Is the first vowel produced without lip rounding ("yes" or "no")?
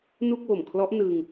no